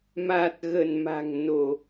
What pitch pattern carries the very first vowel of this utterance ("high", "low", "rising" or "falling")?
low